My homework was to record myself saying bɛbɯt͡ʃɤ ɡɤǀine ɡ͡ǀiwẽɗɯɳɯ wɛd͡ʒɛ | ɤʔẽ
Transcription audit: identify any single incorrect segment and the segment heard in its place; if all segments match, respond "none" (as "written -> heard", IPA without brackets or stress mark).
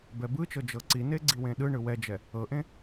ɡ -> d͡ʒ